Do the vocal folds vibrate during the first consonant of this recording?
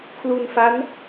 no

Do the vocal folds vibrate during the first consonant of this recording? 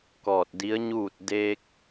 no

